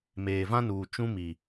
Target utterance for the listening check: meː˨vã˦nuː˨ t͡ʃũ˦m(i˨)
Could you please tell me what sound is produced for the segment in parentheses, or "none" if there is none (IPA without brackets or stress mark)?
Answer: i˨